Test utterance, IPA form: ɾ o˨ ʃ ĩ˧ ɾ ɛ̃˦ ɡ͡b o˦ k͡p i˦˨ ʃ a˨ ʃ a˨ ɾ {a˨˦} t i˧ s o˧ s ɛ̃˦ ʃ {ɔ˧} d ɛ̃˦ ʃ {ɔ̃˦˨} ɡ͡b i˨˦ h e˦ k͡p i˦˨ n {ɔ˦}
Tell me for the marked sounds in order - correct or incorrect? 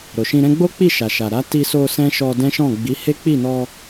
correct, correct, correct, incorrect

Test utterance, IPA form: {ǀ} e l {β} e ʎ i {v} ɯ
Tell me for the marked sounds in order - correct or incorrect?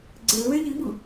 incorrect, correct, incorrect

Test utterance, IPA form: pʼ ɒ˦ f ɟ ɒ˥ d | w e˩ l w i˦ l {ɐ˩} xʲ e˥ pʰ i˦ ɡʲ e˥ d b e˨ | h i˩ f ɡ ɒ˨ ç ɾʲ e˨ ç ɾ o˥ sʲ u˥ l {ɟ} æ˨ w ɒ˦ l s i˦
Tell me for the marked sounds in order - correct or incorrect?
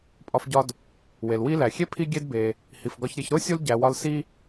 incorrect, correct

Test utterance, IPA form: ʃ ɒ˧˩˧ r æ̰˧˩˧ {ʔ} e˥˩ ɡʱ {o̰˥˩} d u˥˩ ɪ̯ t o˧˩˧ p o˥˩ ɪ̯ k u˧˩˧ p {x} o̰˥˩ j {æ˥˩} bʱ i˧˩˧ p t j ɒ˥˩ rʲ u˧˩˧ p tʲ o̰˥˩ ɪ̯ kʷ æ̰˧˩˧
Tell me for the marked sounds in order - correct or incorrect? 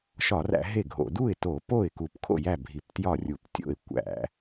incorrect, incorrect, incorrect, correct

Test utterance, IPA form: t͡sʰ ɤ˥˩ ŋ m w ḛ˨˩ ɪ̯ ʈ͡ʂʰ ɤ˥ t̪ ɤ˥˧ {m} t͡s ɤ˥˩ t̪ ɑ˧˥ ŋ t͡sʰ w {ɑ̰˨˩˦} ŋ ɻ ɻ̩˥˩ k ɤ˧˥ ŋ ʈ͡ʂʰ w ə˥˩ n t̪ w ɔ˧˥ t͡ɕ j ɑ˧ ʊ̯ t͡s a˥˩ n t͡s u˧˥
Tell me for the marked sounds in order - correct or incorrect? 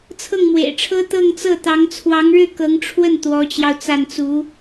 incorrect, incorrect

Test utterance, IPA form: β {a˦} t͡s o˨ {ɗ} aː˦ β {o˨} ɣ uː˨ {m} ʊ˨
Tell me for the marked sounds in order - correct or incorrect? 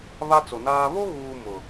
correct, incorrect, incorrect, correct

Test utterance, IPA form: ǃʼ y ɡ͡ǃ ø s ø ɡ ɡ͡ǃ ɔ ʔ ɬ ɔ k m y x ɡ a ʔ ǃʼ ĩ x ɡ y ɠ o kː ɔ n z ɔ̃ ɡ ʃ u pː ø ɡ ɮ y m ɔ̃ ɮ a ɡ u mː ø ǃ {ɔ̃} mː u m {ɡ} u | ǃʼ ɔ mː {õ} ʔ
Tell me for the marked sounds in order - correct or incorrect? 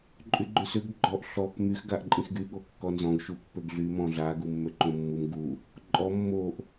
incorrect, correct, incorrect

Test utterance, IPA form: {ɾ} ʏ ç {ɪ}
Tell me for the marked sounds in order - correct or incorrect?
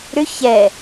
correct, incorrect

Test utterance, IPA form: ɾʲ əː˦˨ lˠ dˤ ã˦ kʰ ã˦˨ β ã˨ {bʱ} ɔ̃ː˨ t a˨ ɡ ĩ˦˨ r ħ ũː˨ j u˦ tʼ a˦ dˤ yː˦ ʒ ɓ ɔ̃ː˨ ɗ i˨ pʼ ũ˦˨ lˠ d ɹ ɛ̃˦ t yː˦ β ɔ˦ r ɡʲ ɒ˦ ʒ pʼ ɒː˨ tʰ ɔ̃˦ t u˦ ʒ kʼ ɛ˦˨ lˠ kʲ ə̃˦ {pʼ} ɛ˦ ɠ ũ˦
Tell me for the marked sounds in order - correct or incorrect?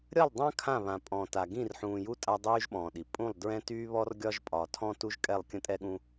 incorrect, incorrect

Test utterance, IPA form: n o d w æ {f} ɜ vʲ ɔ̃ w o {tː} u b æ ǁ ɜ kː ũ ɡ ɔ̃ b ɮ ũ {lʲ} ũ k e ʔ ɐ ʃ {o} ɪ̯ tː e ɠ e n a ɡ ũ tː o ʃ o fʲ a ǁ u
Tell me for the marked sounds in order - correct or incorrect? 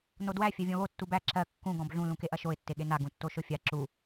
incorrect, correct, incorrect, correct

